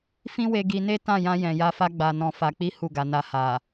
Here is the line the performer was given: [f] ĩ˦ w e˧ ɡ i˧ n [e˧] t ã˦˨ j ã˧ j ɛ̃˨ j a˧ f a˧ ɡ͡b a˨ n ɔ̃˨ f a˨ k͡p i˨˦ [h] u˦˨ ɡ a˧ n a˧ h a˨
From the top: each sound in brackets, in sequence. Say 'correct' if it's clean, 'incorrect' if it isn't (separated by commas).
correct, incorrect, correct